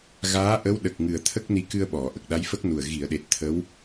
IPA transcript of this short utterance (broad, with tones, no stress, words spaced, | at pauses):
ɣaː˧˥ ʔə˧˥wɗə˨˩k̚ŋɨ˨˩ə̯t̪ʰə˦˥k̚ ni˧˥kɨ˧ə̯ɓɔ˨˩˨ ʔə˨˩k̚ɗa˧˥jfə˦˥k̚nu˨˩ə̯ ɣi˨˩˨ə̯ɗe˨˩t̚ t̪ʰə˧˥w